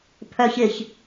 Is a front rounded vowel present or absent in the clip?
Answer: present